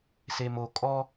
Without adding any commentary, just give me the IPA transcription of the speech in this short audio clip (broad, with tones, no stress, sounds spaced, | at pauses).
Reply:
s e˨ m o˨ kʼ ɔ˦